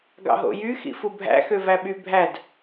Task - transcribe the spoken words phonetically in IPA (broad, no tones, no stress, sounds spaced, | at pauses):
ɡ ɑ̰ ɦ o̰ j y x ḭ f u bʱ æ̰ x ø v æ ɓ y bʱ æ d